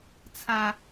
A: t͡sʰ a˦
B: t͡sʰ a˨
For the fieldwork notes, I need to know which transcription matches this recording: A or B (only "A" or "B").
A